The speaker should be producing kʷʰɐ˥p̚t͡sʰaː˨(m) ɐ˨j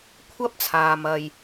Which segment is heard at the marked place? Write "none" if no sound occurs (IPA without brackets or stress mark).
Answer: m